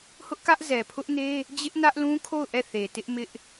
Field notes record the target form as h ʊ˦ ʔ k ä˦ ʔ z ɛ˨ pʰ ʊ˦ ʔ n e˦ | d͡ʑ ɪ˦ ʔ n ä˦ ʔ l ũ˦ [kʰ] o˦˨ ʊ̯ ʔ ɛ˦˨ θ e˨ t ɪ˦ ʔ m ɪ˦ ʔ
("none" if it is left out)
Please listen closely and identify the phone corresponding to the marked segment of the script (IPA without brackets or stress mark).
kʰ